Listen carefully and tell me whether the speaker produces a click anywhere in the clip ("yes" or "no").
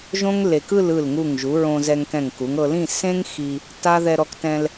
no